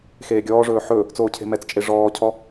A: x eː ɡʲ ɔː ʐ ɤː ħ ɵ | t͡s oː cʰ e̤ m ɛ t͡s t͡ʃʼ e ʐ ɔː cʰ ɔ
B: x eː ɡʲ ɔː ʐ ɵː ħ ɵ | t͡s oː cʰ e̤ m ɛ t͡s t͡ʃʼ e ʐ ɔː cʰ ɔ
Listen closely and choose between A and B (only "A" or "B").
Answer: B